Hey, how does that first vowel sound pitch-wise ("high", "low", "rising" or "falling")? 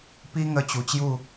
high